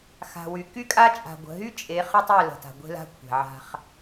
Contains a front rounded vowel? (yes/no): yes